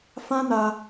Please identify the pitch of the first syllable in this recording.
high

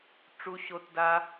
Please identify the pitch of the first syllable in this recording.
high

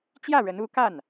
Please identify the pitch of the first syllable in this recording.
falling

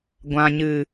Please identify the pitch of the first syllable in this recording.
low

